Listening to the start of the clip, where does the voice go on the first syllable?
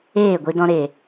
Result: falling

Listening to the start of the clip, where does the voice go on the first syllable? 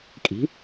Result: rising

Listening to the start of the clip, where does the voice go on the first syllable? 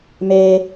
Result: low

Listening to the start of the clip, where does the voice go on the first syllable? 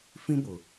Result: high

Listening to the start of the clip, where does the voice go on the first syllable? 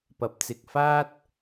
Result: rising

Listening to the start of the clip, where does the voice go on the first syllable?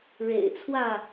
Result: low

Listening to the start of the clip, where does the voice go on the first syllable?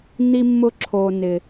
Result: high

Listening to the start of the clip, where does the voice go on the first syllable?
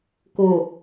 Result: low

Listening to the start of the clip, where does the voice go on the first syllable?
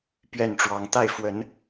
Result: falling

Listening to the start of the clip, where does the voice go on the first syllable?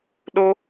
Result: high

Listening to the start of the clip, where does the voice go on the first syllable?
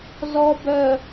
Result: low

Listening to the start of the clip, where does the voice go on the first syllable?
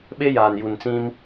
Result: high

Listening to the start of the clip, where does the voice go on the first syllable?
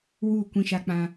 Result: falling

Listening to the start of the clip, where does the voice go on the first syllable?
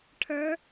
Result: rising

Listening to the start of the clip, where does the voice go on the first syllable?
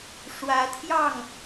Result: rising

